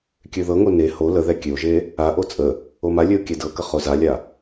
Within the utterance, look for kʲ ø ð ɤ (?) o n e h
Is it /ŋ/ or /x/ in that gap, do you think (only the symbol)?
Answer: ŋ